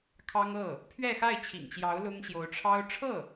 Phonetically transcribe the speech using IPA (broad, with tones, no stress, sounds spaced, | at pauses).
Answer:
kʰ ɑ˥ ŋ ɤ˥˩ | pʰ ɥ ɛ˥˧ x a˥˩ ɪ̯ t͡ɕʰ ḭ˨˩ ŋ t͡ɕ j ɑ˧˥ ʊ̯ l ʊ˥ ŋ ɕ j o˧˥ ʊ̯ ʈ͡ʂʰ ɑ˥ ʊ̯ ʈ͡ʂʰ ɤ˥˩